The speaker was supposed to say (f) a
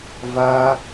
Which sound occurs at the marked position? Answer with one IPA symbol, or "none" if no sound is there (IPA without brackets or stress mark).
v